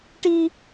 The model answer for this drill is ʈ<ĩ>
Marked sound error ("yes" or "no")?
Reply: yes